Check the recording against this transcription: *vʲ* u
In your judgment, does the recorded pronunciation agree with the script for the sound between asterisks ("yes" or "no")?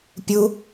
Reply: no